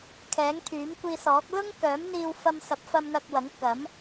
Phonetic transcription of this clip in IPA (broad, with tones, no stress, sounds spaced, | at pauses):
kʰ ɛː˨˥ ŋ t̪ʰ yː˨˥ m kʷ iː˧ s ɔː˨˥ k̚ l ʊ˥ ŋ k œː˨˥ m n̪ iː˧ w f ɐ˧ m s ɐ˨˥ p̚ f ɐ˧ m n̪ ɐ˧ k̚ w ɐ˨˥ ŋ k ɐ˨˥ m